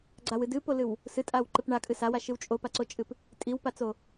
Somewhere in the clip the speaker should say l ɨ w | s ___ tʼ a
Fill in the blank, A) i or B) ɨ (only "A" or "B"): B